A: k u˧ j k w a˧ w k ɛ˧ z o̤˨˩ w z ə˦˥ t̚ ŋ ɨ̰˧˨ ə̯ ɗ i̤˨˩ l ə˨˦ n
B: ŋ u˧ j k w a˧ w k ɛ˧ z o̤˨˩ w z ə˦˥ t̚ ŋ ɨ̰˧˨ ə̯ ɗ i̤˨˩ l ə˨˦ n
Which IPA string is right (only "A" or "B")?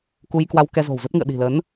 A